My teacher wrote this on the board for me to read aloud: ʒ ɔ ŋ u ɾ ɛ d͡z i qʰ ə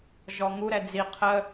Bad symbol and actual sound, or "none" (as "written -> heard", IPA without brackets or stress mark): none